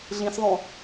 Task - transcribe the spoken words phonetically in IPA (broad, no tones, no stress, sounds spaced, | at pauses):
ɮ ĩ s ðˤ õ